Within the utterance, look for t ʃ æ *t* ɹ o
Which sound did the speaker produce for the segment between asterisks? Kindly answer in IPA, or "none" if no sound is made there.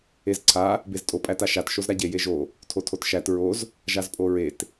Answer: t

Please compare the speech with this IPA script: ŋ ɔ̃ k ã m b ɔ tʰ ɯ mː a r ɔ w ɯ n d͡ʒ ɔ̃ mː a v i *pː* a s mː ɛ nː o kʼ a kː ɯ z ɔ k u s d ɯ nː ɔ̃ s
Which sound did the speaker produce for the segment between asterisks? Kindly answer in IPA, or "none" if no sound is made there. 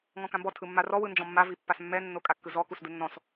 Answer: pː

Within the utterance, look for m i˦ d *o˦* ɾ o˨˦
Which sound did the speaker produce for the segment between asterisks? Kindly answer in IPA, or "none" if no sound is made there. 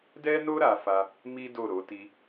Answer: o˦˨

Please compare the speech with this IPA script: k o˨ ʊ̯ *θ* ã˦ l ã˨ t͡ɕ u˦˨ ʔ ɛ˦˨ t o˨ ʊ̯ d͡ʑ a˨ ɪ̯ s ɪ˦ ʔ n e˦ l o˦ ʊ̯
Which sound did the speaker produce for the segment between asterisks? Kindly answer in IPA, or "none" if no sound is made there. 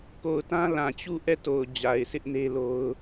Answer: t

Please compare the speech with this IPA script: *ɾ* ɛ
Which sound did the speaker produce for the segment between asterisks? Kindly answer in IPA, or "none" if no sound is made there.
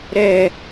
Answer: ɾ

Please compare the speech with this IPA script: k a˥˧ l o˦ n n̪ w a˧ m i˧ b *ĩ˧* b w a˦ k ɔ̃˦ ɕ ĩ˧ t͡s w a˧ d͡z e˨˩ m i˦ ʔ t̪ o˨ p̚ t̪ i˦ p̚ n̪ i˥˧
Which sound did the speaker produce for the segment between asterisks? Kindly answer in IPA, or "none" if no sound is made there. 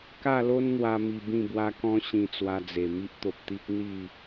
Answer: ĩ˥˧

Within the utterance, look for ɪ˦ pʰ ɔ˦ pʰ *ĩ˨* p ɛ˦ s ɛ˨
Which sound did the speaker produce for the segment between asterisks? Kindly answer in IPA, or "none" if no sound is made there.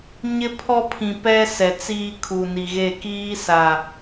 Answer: ĩ˨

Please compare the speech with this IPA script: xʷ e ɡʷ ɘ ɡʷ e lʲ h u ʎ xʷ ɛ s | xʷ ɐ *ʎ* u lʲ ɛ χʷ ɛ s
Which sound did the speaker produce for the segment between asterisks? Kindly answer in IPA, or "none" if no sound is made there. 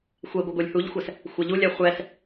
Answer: ʎ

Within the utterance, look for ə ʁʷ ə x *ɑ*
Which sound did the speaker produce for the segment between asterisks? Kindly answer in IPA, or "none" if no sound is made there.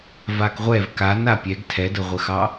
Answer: ɑ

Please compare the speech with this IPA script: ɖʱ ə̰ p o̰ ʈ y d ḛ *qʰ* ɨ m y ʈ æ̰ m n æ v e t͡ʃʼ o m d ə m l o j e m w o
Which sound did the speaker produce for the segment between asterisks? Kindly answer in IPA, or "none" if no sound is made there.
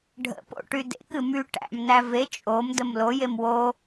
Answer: k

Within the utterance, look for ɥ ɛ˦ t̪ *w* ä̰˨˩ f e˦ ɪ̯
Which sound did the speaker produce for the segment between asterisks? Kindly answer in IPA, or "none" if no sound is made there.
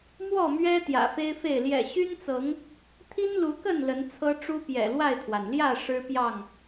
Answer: j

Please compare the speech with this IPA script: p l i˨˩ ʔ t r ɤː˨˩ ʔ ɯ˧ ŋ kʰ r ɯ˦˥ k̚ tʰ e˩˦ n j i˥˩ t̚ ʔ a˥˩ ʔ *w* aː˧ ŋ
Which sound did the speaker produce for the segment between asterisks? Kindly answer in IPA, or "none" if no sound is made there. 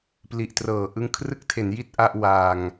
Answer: w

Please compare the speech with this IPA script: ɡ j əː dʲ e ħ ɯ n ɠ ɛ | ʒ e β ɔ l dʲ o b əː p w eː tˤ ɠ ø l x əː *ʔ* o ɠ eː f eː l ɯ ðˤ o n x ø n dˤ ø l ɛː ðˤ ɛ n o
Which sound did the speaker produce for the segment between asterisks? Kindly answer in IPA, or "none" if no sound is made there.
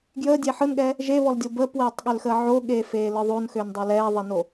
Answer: ʕ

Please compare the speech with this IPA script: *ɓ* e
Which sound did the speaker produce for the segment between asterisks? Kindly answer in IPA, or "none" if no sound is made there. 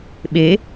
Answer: ɓ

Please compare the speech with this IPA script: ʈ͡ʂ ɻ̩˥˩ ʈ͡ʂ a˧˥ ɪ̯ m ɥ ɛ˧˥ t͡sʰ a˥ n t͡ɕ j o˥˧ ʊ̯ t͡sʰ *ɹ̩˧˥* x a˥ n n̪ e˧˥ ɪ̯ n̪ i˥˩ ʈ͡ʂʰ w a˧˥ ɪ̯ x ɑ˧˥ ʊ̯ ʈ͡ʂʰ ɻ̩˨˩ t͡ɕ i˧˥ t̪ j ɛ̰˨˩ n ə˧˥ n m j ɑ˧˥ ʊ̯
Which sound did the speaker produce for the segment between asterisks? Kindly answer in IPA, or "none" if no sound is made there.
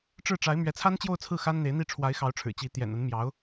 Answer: ɹ̩˥˩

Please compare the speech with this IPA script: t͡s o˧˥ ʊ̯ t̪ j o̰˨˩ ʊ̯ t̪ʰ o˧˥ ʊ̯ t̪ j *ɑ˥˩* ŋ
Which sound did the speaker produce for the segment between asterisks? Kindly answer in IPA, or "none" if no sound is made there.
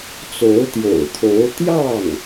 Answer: ɑ˥˩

